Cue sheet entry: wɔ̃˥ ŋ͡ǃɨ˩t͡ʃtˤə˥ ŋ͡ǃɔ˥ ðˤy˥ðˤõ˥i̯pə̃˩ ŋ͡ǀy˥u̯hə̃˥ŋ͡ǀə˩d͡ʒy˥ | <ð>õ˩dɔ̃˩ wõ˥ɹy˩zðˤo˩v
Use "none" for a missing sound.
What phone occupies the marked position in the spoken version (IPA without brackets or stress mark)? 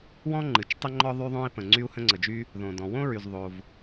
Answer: ð